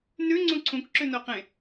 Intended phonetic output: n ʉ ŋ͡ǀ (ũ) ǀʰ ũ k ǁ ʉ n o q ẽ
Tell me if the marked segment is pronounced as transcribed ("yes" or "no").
yes